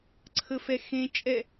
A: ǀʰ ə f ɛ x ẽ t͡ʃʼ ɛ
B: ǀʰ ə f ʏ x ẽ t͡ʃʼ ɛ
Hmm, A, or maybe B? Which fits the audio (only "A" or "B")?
A